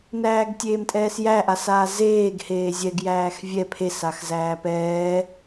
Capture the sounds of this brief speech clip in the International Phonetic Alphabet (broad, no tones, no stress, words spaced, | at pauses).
næːɡtʲeːmtʼɛːsjæ ʔasaːzeːɡ heːzʲɛɡ jæːxvʲɛ pʰes axzæːpɛː